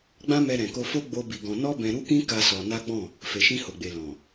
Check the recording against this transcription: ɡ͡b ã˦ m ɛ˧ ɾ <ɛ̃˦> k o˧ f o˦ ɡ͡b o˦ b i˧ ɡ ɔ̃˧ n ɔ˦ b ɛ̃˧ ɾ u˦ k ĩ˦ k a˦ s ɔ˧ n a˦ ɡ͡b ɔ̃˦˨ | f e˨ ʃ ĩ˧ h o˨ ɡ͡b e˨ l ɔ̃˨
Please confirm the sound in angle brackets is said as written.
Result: no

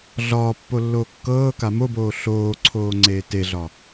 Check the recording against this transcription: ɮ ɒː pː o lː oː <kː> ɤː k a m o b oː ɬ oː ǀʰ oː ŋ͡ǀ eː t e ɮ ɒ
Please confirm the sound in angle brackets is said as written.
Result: yes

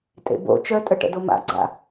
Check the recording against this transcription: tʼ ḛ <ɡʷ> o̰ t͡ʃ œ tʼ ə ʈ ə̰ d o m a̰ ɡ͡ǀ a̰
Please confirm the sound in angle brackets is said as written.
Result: no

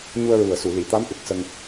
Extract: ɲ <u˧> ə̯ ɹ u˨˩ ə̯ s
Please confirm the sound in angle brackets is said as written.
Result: yes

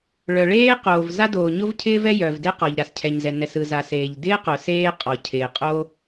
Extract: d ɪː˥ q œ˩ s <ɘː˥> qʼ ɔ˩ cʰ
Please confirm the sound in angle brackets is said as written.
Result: no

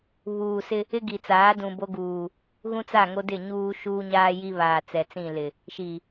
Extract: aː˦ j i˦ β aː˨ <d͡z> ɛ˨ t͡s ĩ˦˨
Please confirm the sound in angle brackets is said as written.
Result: no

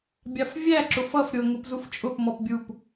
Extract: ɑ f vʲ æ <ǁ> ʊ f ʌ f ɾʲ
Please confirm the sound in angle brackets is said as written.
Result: yes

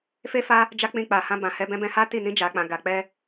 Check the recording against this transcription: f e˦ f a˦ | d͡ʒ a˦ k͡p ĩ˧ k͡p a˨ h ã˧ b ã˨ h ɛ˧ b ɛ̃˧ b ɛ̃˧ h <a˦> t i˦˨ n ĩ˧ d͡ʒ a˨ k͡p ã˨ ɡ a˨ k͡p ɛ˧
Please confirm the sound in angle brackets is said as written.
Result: yes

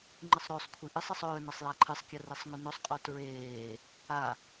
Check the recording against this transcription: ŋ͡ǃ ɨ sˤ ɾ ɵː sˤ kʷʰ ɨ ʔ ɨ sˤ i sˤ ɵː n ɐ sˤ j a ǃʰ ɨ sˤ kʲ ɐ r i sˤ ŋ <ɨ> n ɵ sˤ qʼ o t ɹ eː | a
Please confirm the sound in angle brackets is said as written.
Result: no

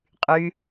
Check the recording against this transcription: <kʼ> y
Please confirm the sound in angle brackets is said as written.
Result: no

